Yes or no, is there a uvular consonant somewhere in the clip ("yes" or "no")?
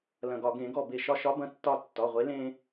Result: yes